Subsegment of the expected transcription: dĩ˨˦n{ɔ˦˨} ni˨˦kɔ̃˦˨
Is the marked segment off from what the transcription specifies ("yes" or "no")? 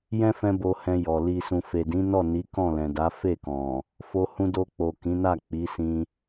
no